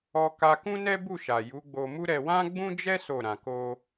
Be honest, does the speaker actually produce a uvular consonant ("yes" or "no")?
no